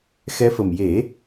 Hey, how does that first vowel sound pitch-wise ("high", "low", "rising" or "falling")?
rising